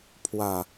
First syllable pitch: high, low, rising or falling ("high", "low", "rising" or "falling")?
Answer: falling